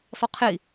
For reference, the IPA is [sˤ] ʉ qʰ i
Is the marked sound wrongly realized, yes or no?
no